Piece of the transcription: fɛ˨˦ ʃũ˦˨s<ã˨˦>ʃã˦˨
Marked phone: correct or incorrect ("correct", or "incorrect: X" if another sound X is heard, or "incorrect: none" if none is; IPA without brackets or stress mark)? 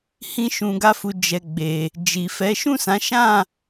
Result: correct